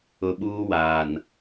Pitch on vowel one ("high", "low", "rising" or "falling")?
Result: low